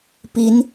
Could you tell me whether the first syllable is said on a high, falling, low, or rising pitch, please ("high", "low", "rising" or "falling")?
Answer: rising